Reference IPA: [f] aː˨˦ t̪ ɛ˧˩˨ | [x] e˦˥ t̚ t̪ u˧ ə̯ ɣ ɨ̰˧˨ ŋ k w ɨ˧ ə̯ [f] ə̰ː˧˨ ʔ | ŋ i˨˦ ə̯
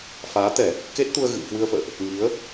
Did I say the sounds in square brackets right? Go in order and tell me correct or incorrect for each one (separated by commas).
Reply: correct, incorrect, correct